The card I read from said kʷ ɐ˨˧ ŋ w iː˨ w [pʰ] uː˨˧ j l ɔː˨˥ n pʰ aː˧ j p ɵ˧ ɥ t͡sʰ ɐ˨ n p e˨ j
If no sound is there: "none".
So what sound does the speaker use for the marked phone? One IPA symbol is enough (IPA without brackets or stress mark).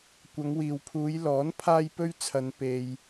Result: pʰ